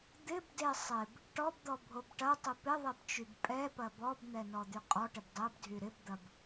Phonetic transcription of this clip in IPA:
d̪ɪbde sˤɪb | ʈɔbd̪ɔbʱob ʈɐtˤɪ pɪðˤɛbt͡ʃyb pʼɛpɐ bɔbn̪ɛnɔd̪y qʼɔʈɪb dˤɛbdʱy ɾɪbd̪ɐb

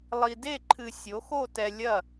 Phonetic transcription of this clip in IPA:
lˠi˨de˥˩ǃʰɨ˨ sʲo˩˥xo˥˩tɛ˨ lʲɐ˥˩

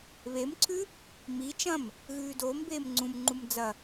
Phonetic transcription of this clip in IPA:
βemǀʰʉ | mi t͡ʃɐ̃m | ɣʉːdoːmbeːm ŋ͡ǀũmŋ͡ǃum d͡zɐ

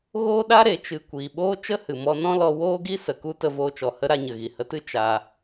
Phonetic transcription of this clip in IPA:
ɣoː˦ɗa˦ ɾe˨t͡ʃɨ˨ kʷiː˨ɓoː˦ t͡ʃə˦hɨ˨mɔ˧nɔ̃˦ lɔ˧ woː˦ɡi˦ sə˨ku˦ tə˧voː˧t͡ʃɔ˨hə˦ ɾa˧ɲə˨ ɣi˨hə˧tɨ˦ t͡ʃa˧

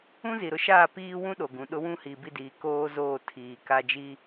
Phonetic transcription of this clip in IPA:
ũ˦zi˨ɾʊ˦ ʃaː˦˨piː˦wũ˦ ɗo˨ɡũ˨ɗʊ˦wũ˦ hi˨bi˦˨diː˨ koː˦zoː˦˨ tʰiː˨ka˦d͡ʒi˦

